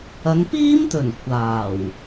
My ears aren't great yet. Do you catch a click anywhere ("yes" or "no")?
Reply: no